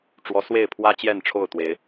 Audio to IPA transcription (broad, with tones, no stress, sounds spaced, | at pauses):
ʈ͡ʂ w ɔ˨˦ s w e˥˨ ɪ̯ pʰ w ä˦ t͡ɕ j ɛ˥˨ n ʈ͡ʂʰ o˥˨ ʊ̯ t̪ w e˨˦ ɪ̯